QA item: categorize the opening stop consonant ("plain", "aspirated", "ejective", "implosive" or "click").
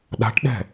implosive